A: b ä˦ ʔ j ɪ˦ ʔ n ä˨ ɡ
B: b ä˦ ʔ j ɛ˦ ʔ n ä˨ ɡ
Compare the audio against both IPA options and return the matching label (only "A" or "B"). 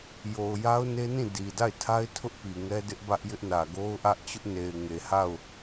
A